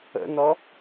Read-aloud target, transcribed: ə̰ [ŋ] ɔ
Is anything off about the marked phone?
yes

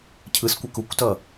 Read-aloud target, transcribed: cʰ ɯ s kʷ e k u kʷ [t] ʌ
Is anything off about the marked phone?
no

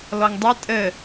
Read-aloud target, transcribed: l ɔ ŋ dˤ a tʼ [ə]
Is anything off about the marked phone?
no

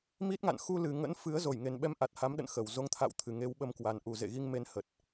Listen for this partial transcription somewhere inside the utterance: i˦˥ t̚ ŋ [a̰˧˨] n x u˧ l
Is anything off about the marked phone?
no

